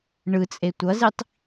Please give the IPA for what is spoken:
ɳ ɯ t͡sʼ e tʷ ʌ z i tˤ

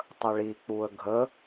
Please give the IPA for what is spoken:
tˤ ə ɭ i k͡p u ə̯ ɡʱ ə

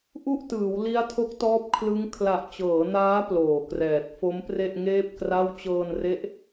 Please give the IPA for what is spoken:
ʔ u˥˩ ʔ t ɯː˩˦ w l i˦˥ a̯ tʰ o˦˥ k̚ t ɔː˦˥ p̚ kʰ l ɯ˦˥ ŋ kʰ l a˨˩ ʔ t͡ɕ ɤː˩˦ n aː˦˥ p l oː˨˩ k r ɛː˨˩ t̚ f o˦˥ m p r e˥˩ ʔ ŋ eː˥˩ p̚ k r a˥˩ w t͡ɕ ɤː˧ n r e˦˥ ʔ

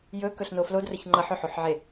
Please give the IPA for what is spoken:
j ɵ k ɵ ɬ n o f l o d r ə ç ŋ͡ǃ ʌ ħ ɵ ħ o ħ ʕ e

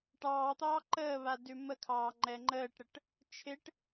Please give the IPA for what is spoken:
ʈ ɑː t̪ ɑː ǃ əː β a d ʉ m ə kʰ ɑː ŋ͡ǃ ɛ ŋ͡ǃ əː ʈ ɾ ə ʈ | t͡ʃʰ ɪ ʈ

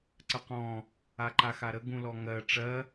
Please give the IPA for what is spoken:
ǀ ə q ɔ̃ | a ǃ a x a ɾ ə ɡ ũ l ɔ ŋ ɜ ʈ͡ʂ ɜ

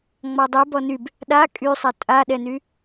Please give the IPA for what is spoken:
ŋ͡m ɒ dˤ y b ɔ n y b | ɗ a kʼ y sˤ ɛ tʼ a ɗ ɛ n y

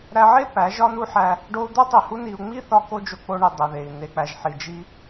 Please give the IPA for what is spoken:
ɾ æ˧ ʕ e˦ p æ˨˦ ʒ ɒ˦ n u˦ ħ æ˧ | ɖ o˧ u̯ d̪ o˦ tˤ i˨ h u˦ n i˧ u̯ ŋ͡m i˦ θ ɒ˧ k o˦ d͡ʒ o˧ k͡p o˧ ɳ i˨ dˤ e˨ ð e˨ i̯ n̪ e˨ k͡p æ˨ ʒ ħ i˨ d͡ʒ i˧

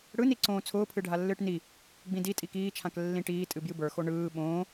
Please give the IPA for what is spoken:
ɽ ɯ n i ǀ õː t͡sʰ ʊː pʰ ɨ ɖʱ a lː ɨː ʈ n i | ɡ͡b ĩ d i tʼ i k iː t͡ʃʰ ã k lː ĩ ʈ iː tʼ ɨ b j ɨ b ə˞ x o ɳ ɯː ɓ õː

